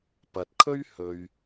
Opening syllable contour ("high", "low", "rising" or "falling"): low